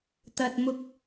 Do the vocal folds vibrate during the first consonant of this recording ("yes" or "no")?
no